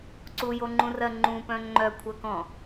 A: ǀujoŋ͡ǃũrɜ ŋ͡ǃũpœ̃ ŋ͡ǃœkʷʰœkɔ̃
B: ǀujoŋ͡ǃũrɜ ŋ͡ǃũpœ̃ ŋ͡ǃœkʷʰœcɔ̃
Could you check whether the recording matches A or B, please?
A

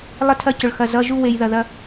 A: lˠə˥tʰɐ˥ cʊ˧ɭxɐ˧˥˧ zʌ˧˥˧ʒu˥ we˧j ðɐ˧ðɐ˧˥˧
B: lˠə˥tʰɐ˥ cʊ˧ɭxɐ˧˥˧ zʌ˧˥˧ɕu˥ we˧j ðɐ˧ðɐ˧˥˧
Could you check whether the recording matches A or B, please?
A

